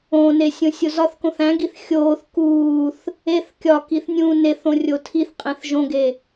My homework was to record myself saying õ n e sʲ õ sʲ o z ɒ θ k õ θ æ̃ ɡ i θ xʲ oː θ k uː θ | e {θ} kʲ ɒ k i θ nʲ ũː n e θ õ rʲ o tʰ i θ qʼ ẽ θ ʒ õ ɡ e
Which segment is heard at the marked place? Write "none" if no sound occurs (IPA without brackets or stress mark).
θ